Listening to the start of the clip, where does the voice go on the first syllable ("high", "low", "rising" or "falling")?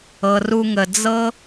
low